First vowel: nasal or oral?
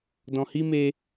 nasal